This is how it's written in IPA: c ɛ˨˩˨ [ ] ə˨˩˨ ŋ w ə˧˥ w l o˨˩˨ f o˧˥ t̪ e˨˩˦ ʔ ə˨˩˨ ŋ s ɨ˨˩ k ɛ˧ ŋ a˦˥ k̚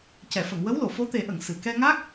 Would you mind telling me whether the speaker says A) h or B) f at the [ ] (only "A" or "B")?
B